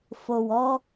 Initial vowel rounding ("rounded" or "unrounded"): rounded